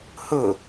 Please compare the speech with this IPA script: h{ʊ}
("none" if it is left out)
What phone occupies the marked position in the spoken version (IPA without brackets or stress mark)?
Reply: ʊ